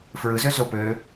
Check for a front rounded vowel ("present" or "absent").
present